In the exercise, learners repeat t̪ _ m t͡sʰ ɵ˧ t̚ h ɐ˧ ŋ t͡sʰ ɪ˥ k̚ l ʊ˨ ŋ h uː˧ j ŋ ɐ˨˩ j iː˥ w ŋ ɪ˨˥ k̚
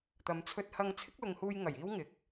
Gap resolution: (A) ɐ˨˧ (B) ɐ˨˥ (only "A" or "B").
A